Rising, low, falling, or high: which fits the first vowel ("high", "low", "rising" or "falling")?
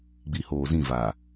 low